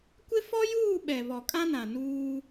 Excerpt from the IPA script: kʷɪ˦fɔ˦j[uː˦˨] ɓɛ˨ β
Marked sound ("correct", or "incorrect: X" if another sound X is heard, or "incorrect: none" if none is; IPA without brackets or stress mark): correct